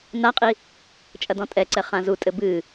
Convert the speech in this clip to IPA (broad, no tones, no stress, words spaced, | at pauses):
naqʼi | t͡ʃʼɐdɔ̃tʼɛǀɛ χãzutʼɘ bɨ